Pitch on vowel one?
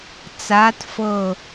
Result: rising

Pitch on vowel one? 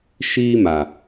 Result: high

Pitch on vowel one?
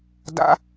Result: high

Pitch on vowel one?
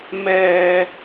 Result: low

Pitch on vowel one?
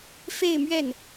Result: falling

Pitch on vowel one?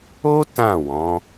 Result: high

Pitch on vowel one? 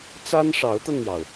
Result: high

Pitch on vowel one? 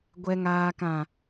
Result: low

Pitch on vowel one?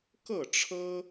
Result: falling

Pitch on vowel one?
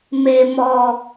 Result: low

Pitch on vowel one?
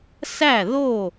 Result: falling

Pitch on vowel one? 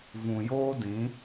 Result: low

